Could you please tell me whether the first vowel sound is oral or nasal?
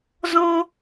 nasal